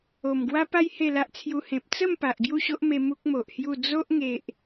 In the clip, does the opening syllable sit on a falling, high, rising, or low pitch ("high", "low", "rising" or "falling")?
low